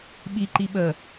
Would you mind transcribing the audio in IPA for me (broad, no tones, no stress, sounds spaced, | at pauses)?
ɓ i ǃ i ɓ ə